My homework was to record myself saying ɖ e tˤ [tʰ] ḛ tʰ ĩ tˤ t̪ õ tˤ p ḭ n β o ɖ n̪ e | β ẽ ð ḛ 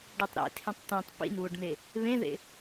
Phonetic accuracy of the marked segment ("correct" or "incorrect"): incorrect